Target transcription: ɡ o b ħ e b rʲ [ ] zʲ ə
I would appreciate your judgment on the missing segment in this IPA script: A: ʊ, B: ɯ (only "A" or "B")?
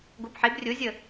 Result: A